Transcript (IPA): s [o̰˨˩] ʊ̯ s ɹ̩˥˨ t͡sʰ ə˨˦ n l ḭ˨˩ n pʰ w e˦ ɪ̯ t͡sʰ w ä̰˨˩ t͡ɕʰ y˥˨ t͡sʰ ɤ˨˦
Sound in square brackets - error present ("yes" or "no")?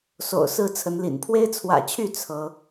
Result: no